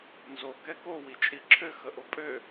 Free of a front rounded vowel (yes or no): no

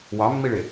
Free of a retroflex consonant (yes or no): no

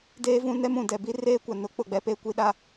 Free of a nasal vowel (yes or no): no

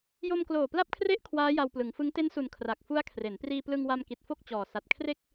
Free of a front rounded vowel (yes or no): yes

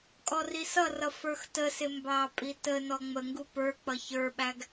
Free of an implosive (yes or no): no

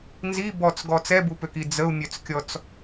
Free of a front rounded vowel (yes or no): no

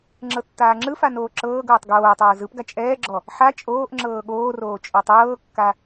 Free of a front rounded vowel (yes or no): yes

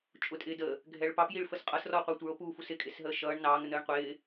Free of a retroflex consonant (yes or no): no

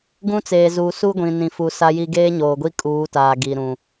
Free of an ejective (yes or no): no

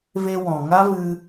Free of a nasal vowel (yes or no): no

